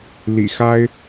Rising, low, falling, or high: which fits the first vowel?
low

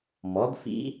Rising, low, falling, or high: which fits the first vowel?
rising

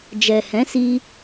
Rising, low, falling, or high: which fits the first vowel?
low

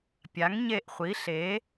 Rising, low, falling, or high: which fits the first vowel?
rising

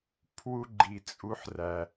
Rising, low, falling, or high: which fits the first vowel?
high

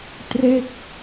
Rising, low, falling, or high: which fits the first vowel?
falling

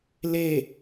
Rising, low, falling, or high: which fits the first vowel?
falling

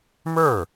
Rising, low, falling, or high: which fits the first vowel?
falling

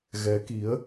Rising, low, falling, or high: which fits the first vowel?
rising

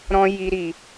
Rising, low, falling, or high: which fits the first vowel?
high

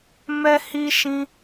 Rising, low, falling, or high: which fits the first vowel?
high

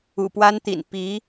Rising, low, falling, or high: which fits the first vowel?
low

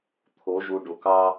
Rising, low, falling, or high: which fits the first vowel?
rising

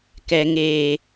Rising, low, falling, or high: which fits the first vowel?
low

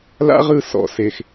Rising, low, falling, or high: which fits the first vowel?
high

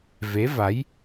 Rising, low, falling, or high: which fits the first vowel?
rising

